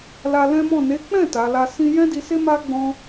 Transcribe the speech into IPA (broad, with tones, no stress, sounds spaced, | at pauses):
l a˧ l ɛ̃˦ m ɔ̃˦˨ n e˨˦ k͡p ɛ̃˦˨ t a˨˦ l a˦ s ĩ˧ j ɛ̃˦ d i˧ s e˦ m a˦ ɡ͡b ɔ̃˧